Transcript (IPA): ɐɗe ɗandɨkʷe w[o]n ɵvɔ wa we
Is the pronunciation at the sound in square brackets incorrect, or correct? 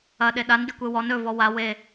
incorrect